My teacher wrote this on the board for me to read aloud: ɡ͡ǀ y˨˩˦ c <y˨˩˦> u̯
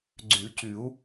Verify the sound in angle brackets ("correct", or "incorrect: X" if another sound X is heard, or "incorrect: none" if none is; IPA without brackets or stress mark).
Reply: correct